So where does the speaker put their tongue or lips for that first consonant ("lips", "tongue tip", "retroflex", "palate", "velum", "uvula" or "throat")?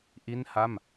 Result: throat